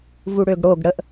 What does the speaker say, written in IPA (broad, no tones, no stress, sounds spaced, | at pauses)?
v u ɽ ø ɡ ɽ o ɡ ɽ ə ʔ